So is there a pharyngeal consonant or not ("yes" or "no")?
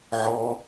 yes